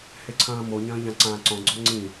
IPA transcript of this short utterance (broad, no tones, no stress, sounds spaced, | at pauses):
h e ǀʰ ɐ̃ː m o ɲ ɐ̃ː ʎ ã ǀ ãː ǀ ɔ̃ ɡ͡ǀ ɔ ŋ͡ǀ ĩ